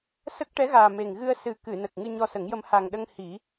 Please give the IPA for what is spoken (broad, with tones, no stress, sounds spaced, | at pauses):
s ə˦˥ k̚ ʈ ɛ˧˥ ɣ aː˨˩ m e˨˩ ŋ ɣ ɨ˧ ə̯ s ɨ˨˩ k ɨ˨˩˨ n ə˨˩ k̚ ŋ ɨ˧ ɲ ɔ˧ s ə˨˩˦ ŋ j ə˧ m h a˨˩ ŋ ɗ ə˧ ŋ h i˨˩˦